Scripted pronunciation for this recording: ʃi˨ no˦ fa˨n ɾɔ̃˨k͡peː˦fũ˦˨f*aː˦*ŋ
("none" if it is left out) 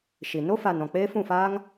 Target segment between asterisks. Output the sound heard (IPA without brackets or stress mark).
aː˦